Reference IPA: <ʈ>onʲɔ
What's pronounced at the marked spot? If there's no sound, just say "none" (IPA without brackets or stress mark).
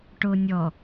ʈ